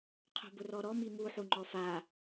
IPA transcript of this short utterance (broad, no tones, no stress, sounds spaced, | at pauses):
qʰ o̤ b ʊ r ɔ ɾ ɔ m i m u ħ u ŋ͡ǃ ɔ f a